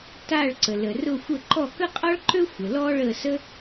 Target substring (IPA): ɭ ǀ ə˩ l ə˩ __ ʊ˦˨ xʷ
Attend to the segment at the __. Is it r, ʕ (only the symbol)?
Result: r